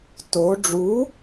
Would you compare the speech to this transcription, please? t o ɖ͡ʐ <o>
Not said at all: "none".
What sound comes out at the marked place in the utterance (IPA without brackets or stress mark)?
u